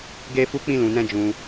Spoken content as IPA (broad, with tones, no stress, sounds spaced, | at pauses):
ɡ e˦ f u˦ k͡p ĩ˧ l ũ˨ n ɛ̃˧ d͡ʒ ũ˧